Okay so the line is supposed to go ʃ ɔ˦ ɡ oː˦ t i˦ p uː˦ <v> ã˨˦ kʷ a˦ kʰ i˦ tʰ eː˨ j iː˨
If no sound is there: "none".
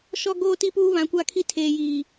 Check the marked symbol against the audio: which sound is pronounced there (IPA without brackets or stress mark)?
β